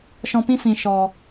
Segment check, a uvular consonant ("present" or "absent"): absent